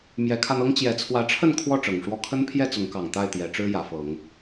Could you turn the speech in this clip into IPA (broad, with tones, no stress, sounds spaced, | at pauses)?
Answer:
m j ɛ˨˦ kʰ a˧ n ɤ˦ ŋ t͡ɕ j ɛ˨˩ t͡sʰ w ä˨˦ ʈ͡ʂʰ ə˥˨ n kʰ w ɔ˥˨ ʈ͡ʂ ɤ˨˩ ŋ ʂ w ɔ˦ kʰ ə˦ n pʰ j ɛ˥˨ t͡s ʊ˨˦ ŋ k ɑ˨˩ ŋ t̪ a˥˨ ɪ̯ t̪ j ɛ˨˦ ʈ͡ʂ ɻ̩˦ j ä˨˦ f ɤ˨˦ ŋ